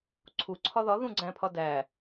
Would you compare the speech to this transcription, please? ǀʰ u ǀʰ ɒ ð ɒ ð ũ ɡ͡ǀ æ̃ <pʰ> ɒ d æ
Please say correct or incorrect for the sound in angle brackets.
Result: correct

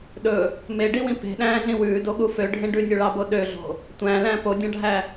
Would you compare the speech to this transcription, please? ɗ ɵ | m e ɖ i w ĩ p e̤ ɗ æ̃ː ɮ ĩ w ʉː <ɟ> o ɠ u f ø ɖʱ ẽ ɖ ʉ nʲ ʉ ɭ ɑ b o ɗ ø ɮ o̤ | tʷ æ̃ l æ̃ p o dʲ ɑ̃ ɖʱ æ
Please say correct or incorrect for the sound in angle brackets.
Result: incorrect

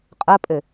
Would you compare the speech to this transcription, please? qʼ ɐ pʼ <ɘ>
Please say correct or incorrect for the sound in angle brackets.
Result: correct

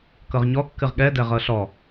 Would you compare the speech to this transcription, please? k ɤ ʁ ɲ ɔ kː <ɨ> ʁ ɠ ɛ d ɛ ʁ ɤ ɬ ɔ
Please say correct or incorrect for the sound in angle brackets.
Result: correct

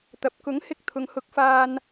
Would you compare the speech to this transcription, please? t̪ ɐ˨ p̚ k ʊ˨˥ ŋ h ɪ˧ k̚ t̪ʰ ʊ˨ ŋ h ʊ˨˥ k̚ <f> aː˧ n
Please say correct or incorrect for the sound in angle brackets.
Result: correct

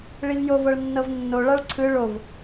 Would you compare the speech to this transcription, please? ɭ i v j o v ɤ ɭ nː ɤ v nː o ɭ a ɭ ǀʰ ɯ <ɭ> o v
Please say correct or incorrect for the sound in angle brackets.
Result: correct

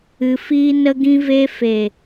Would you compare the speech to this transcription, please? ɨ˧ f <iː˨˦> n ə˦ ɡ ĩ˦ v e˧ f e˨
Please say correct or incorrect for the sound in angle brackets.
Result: incorrect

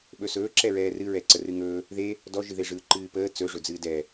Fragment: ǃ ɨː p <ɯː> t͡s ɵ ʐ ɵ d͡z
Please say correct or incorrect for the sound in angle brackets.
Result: incorrect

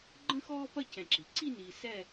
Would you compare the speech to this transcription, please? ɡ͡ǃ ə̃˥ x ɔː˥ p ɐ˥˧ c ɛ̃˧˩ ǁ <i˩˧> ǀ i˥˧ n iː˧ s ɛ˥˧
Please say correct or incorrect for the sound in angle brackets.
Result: correct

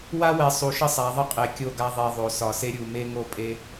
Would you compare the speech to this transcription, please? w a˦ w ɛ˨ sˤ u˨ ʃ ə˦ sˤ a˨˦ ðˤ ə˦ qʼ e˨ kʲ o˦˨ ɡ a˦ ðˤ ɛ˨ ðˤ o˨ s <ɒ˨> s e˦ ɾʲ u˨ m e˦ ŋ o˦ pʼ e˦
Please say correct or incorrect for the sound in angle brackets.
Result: correct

